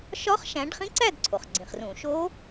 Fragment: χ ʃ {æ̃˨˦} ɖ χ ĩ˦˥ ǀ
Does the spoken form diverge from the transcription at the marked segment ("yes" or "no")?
no